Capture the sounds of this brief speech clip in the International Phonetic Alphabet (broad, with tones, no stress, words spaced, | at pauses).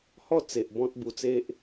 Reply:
hɔ˥˧ t͡se˨ʔ bɔ̃˦t̚bu˧t͡se˦ʔ